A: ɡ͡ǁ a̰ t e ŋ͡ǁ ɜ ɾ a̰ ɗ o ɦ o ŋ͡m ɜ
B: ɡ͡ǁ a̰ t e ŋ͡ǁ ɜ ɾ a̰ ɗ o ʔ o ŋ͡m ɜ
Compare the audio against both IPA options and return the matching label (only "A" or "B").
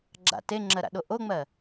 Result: B